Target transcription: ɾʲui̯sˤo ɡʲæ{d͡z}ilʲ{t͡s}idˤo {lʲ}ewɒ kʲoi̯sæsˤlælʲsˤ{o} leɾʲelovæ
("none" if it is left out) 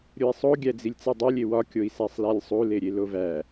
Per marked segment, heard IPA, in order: d͡z, t͡s, lʲ, u

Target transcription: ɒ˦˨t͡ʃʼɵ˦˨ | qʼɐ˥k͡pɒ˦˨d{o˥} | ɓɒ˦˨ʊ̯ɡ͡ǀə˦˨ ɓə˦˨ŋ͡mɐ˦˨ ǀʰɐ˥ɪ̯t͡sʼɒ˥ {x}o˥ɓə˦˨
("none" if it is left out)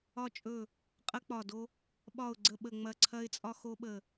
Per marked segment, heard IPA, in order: o˥, x

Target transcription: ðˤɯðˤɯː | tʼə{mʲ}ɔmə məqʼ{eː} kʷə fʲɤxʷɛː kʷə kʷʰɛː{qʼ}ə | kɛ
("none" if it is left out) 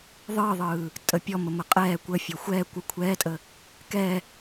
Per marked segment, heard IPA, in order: pʲ, ɛː, tʼ

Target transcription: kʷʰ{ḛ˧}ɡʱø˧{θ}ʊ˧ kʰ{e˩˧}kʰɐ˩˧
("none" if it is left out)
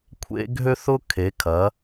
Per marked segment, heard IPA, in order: ḛ˧, θ, e˩˧

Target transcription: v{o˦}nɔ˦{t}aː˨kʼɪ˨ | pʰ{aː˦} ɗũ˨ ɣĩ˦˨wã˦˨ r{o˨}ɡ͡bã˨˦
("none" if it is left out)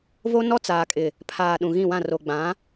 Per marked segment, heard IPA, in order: o˦, t͡s, aː˨, o˨

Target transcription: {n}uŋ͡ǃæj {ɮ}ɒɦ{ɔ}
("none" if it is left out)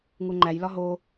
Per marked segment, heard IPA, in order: ŋ, l, o

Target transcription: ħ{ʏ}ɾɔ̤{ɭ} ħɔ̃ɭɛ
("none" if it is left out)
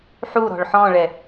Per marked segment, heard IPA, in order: u, ɭ

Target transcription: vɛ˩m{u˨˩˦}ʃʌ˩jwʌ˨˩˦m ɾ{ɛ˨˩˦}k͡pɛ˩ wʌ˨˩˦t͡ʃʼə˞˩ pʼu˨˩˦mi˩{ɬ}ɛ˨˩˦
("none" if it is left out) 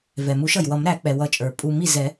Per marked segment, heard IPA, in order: u˨˩˦, æ˨˩˦, z

